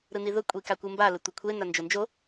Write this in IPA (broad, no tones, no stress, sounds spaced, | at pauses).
ɾ ɯ n i ð ʊ kʷʼ i k a kʷ ɯ m b a l ɘ tʷ ɐ kʷʰ e n a n d͡ʒ o n d͡ʒ o